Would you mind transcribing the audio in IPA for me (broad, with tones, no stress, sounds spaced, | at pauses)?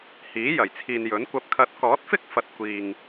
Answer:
h iː˨˥ j ɐ˨˩ j t͡sʰ iː˨ n j ɵ˨˥ n kʷ ɐ˨˥ p̚ kʰ ɐ˨˥ t̚ k ɔː˨˥ t̚ f ɪ˥ k̚ f ɐ˨ t̚ kʷ iː˨ ŋ